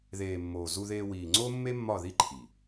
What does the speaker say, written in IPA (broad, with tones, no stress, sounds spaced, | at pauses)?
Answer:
ð eː˨ mː oː˨ z u˧ ð eː˧ w iː˨ ŋ͡ǀ oː˦ mː e˦ mː ɒ˦˨ ð i˦ ǃʰ i˨